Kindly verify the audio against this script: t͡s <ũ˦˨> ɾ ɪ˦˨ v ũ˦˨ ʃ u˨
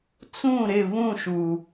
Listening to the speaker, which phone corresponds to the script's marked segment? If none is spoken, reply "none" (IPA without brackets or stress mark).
ũ˦˨